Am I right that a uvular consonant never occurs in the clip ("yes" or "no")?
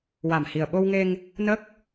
yes